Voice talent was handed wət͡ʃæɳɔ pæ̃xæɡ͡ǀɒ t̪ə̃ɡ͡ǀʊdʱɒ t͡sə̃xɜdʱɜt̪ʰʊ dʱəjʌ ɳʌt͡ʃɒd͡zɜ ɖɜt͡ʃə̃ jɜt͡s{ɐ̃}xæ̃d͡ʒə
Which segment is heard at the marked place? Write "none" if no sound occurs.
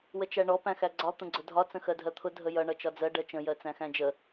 æ̃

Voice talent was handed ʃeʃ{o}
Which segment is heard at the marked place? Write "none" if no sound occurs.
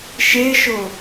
o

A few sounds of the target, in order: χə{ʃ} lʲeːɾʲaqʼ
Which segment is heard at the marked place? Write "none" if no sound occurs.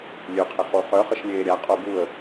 ʃ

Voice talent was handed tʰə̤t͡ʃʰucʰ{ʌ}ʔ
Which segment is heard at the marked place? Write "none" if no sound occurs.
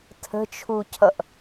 ʌ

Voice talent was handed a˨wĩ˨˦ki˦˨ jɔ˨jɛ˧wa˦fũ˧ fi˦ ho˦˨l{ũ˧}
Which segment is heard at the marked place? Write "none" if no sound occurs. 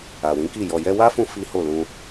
ũ˧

